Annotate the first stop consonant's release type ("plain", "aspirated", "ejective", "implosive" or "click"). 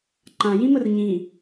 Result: click